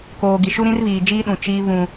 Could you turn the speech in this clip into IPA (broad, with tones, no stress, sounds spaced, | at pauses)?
k oː˨ ɡ i˨ ʃ u˦ ɾ ĩ˦ r β iː˨ d͡ʒ iː˦ ɗ ũ˨ t͡ʃ iː˦ β ũ˦